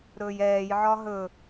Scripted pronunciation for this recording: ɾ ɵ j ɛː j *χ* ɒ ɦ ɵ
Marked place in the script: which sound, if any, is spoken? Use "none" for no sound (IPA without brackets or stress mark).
ʕ